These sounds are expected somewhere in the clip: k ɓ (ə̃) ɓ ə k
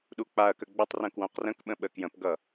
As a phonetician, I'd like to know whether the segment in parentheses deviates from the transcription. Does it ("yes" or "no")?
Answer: no